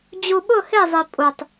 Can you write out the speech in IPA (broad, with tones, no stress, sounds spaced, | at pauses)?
d͡ʑ u˨ ɓ ʊ˦˨ h ɪː˦˨ zˤ i˨ pʼ u˨ tˤ